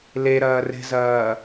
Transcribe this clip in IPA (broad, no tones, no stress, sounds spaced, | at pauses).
l e ɾ ɐː r e̤ z ɐː